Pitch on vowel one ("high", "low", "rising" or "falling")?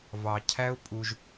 low